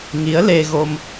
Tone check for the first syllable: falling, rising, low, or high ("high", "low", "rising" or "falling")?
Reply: rising